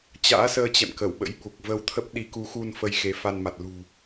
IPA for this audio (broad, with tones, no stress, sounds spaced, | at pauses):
t͡ɕ a̰ː˧˥ s əː˧ t͡ɕ ɛ̰˧˨ m k ə˧˩ w ɓ ə̰˧˥ j ɓ u˨˩ k̚ v ə˧ w t̪ʰ ə˦˥ p̚ ɗ i˨˦ k u˨˦ x u˧ n f ə˧ j x e˨˦ f a˧ n m a˨˩ t̚ l ṳ˨˩